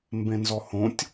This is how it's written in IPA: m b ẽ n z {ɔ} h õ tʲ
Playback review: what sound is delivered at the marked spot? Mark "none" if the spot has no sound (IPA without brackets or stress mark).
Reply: ɔ